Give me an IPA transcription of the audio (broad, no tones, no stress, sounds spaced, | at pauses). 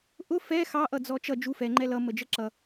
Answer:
ʔ ʊ f ɛ x ɑ ʔ ʌ d͡z ɔ t͡ʃ ʌ d͡ʒ u f ɛ ŋ͡ǃ ɛ l ʌ m ə d͡ʒ ə ǁ ʌ